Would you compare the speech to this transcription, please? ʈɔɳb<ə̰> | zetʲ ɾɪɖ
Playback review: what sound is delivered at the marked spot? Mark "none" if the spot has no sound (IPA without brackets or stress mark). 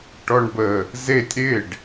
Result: ə